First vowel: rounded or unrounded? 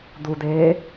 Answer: rounded